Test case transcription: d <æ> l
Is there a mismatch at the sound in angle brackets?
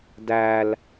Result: no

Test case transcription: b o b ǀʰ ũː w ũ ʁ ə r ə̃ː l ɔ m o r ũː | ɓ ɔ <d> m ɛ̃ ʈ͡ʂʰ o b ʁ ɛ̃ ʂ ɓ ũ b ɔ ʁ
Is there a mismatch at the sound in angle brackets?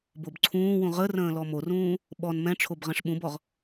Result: yes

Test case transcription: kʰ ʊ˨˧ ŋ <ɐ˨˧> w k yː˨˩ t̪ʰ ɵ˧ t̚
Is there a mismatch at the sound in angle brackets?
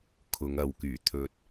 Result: no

